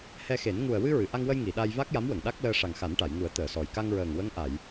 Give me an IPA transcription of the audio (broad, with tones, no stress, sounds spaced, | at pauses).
h ɛ˧ x e˨˩˦ n ŋ u˨˩ ə̯ w ɨ˧ ɹ ɨ˨˩˨ ʔ a˧ ŋ w ə˧ j ŋ i˨˩˨ ɗ a˧ j v a˦˥ k̚ j a˧˥ m w ə˨˩˨ ŋ ɗ a˦˥ k̚ l əː˧ ʂ a˨˩ ŋ x a˨˩˦ n ʈ a˨˩˨ j ŋ u˨˩˦ ə̯ t̪ əː˨˩˨ s ɔ˨˩ j k a˧ ŋ ɹ əː˨˩ ŋ w ə˧˥ ŋ ʔ a˨˩˨ j